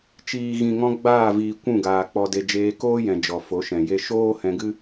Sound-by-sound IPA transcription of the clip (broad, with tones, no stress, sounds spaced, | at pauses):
t͡ʃ iː˨ ɣ ĩ˨ ŋ ɔ̃˧ ɡ͡b aː˦˨ v iː˨ kʷ ũ˦˨ ɡ aː˨ k͡p ɔ˧ d e˧ d͡ʒ eː˧ k oː˦ j ɛ̃˨ d͡ʒ ɔ˨ f o˨˦ ʃ ɛ̃˨ j e˦ ʃ oː˦ h ɛ̃˧ ɡ ɨ˦